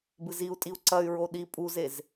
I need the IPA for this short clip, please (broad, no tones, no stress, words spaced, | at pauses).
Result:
bɨziu̯tʼiu̯ ǀɐy̯ɹo ɗi pʼuzez